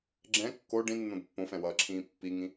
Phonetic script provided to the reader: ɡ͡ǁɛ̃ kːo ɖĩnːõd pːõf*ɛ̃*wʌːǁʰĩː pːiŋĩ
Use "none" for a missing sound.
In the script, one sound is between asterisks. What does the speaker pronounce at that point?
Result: ɛ̃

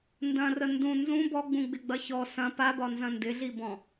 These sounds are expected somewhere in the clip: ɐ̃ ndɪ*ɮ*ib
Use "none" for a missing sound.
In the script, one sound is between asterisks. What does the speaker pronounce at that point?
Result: ɮ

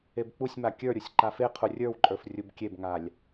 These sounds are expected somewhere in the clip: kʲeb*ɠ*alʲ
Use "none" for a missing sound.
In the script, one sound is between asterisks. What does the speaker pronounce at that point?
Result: ŋ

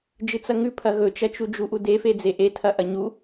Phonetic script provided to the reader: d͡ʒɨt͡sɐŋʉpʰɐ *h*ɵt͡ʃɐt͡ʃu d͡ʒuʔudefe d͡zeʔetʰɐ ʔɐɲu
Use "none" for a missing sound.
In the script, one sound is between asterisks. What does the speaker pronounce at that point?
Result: ɣ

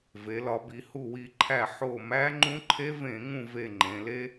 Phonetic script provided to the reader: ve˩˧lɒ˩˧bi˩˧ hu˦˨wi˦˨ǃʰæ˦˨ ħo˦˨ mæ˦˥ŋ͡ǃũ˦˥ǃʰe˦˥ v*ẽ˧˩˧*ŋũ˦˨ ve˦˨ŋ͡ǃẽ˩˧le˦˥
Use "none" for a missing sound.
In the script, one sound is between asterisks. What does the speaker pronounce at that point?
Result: ẽ˧˩˧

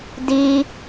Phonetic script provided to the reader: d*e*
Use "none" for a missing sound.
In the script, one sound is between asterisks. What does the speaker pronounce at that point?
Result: i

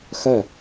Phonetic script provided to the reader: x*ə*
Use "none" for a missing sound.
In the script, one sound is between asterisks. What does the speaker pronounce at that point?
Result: œ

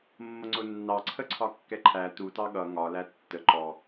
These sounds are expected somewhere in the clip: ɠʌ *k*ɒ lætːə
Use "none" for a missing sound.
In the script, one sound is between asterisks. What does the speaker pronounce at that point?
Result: ŋ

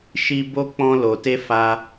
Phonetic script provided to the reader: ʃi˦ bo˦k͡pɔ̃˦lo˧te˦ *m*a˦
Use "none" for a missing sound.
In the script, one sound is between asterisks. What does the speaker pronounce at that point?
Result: f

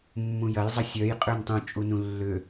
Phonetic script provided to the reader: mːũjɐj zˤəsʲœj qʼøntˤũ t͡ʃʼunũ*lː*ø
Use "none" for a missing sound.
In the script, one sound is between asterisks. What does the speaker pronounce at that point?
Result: lː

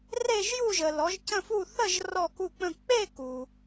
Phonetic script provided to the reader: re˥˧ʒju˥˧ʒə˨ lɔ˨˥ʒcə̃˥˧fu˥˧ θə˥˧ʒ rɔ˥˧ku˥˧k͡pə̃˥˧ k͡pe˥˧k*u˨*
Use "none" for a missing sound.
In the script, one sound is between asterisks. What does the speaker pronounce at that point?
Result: u˨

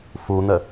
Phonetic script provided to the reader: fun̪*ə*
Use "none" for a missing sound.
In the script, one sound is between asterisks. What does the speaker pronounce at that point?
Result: ə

